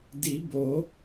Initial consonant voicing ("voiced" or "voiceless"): voiced